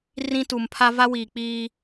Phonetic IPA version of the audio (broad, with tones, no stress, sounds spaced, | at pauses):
r ĩ˦ t u˨ m pʰ a˦ v a˦ w iː˨ k͡p iː˦